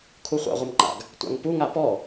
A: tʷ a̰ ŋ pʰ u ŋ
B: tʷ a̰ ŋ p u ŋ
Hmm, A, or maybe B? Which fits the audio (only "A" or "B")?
B